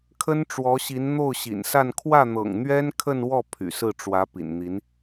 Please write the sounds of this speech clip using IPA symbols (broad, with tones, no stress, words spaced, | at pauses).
kʰə˥nʈ͡ʂwɔ˧˥ɕi˧˥n n̪o˥˩ʊ̯ɕḭ˨˩nsa˥˧n kʰwä˥˩n̪ɤ̰˨˩ŋn̪ɥɛ˥n kʰə˥˧nwɔ˥˩ pʰy̰˨˩sɹ̩˥˩ ʈ͡ʂwä˧˥ pḭ˨˩nn̪i˧˥n